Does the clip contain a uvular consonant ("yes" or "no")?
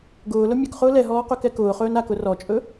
yes